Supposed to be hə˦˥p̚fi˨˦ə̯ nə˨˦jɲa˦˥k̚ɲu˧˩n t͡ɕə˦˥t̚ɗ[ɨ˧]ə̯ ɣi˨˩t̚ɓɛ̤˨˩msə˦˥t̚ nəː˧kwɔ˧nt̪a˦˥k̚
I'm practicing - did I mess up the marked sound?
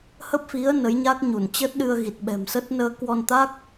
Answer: no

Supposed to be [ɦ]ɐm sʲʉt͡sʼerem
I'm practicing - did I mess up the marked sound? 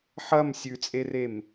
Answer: yes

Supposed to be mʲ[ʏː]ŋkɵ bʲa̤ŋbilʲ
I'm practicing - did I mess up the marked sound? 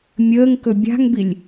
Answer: yes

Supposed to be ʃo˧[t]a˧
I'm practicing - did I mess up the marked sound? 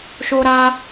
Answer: yes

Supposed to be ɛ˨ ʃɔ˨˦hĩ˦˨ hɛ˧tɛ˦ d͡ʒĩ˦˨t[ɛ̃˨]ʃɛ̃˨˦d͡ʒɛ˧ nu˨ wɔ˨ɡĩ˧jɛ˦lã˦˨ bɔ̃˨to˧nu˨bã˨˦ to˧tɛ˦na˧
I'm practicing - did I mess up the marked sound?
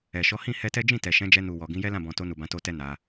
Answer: yes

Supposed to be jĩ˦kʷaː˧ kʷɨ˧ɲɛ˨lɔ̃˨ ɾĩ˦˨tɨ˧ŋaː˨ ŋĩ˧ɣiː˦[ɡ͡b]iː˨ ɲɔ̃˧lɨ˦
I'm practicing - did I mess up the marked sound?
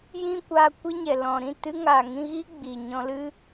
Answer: no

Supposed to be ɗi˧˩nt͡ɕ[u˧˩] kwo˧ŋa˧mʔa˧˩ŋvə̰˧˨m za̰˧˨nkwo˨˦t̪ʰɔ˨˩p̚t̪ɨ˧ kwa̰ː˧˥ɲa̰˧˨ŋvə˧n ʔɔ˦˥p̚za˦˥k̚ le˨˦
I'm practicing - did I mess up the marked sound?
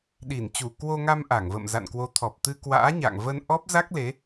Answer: no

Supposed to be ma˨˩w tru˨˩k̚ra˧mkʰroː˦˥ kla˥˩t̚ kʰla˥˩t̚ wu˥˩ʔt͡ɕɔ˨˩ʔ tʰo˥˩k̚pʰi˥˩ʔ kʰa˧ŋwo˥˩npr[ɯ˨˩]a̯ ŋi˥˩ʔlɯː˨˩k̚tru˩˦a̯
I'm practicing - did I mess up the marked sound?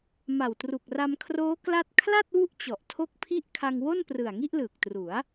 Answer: no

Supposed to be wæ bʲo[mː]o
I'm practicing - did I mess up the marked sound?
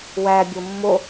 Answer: no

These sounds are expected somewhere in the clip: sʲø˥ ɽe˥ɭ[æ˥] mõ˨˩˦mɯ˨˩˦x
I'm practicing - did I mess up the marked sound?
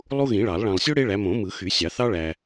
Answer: yes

